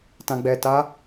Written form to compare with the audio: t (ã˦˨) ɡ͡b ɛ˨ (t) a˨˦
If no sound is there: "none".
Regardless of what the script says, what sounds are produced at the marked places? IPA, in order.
ã˨, t

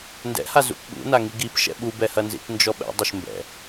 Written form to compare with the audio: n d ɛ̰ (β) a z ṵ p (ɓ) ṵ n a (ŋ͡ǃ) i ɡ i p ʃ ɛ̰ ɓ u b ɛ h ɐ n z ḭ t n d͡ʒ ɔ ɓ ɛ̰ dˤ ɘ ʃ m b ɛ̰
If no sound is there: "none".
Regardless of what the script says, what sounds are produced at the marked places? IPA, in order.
h, ɓ, ŋ

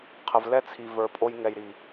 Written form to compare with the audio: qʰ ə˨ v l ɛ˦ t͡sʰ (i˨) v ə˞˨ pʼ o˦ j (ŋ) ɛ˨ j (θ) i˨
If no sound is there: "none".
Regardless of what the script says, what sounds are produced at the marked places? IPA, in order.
i˨, ŋ, ɾ

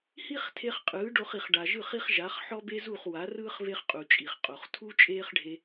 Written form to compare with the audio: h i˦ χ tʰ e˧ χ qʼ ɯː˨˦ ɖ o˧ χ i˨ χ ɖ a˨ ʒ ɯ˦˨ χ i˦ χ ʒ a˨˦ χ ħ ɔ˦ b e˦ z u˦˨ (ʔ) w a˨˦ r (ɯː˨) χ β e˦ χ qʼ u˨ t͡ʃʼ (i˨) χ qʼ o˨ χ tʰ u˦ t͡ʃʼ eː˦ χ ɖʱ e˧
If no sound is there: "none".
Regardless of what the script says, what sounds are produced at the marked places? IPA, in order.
χ, ɯː˦, i˨

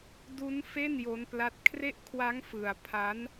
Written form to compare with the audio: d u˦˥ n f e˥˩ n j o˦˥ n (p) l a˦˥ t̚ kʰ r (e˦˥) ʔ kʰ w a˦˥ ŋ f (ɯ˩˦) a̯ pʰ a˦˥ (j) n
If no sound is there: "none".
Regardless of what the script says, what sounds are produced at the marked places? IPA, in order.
p, e˦˥, ɯ˧, none

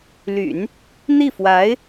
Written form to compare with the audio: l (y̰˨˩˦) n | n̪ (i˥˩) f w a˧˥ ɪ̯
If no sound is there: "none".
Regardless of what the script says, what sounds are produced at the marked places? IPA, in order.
y̰˨˩˦, i˥˩

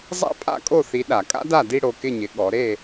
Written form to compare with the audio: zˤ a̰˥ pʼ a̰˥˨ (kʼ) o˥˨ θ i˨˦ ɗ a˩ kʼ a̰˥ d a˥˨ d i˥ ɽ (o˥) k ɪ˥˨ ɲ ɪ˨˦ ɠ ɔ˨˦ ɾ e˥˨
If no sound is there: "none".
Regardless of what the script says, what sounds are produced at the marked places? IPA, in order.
kʼ, o˨˦

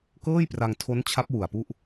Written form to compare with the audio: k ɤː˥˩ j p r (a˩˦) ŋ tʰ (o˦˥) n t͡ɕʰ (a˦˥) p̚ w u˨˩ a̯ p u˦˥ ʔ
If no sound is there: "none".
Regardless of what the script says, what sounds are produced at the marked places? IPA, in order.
a˧, o˦˥, a˦˥

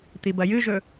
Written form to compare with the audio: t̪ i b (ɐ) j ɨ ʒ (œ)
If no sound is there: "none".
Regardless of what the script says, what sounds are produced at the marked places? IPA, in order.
ɐ, ɵ

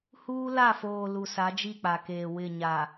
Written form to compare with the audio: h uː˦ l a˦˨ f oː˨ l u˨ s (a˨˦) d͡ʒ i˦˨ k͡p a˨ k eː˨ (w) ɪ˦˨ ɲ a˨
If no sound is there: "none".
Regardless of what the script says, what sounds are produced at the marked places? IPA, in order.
a˨˦, w

